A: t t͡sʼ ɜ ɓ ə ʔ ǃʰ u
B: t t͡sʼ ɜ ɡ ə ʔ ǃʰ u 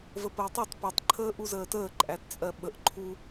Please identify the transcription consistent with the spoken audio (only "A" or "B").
A